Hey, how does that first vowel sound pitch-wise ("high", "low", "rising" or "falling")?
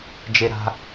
low